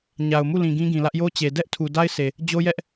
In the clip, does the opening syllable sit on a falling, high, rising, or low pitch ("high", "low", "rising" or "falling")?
low